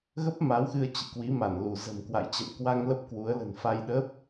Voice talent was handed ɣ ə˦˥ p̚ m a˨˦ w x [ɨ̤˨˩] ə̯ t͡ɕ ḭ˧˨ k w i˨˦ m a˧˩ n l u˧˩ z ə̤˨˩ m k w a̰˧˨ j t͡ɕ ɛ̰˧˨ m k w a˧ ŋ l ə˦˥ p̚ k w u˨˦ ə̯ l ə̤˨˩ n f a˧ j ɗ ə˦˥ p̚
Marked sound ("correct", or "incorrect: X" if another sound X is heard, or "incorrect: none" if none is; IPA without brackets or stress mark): incorrect: ɨ˧